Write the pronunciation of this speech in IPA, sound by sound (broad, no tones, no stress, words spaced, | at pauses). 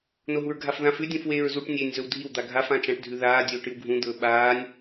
noɦuɹɡʱafðãf ʉ dʲũfweːɹzuʈ nʲeːnʲzɵwdʱiw d̪aɡʱaf ãt͡ʃãʈ dʱʉðaː dʲɵːʈɨwɡʱũ d̪ɵːɓaːnʲ